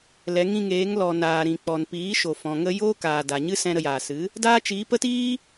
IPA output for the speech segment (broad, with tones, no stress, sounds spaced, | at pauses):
l ɛ˨˦ ŋ ĩ˧ ŋ eː˨˦ ŋ l ɔ˨ n aː˨ ɾ ĩ˨ k͡p ɔ˨ n p iː˨˦ ʃ o˨ f ɔ̃˨ ŋ ə˦ j oː˦ k aː˨ d a˨ ɲ ɨ˦ s ɛ̃˧ ɾ ə˧ j aː˨ s ɨ˨˦ | d aː˦ t͡ʃ iː˨˦ p ə˦ t iː˦